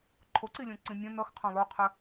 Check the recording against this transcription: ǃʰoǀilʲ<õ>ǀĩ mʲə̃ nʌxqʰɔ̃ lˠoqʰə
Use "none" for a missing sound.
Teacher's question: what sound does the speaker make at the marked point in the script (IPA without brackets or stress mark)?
õ